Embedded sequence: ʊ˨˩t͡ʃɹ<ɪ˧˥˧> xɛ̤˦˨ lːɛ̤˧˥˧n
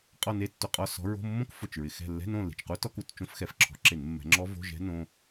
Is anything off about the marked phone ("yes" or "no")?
yes